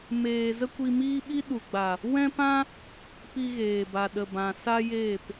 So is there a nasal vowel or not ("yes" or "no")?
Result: yes